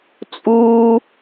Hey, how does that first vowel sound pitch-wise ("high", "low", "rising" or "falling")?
high